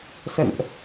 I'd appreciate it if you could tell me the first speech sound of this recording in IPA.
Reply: s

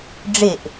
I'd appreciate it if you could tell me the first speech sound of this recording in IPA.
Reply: ɖ͡ʐ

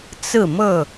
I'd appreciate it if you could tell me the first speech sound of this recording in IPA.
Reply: t͡s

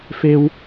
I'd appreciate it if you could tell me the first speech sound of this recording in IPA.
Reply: f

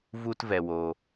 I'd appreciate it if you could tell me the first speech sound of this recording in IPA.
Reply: v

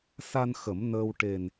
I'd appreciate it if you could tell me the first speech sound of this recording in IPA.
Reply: s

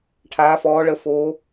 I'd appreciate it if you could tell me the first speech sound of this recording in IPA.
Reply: ʈʰ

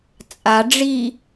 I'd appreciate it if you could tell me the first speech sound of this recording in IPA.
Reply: t͡sʼ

